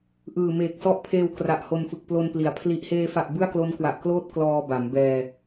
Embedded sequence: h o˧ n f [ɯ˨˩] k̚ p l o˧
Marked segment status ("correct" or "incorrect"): correct